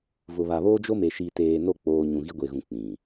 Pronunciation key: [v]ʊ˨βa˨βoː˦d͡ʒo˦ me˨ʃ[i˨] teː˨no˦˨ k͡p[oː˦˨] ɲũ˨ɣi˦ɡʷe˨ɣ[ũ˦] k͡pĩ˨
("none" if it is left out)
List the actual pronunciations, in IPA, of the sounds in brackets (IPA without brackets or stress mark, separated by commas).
v, i˨, oː˦, ũ˨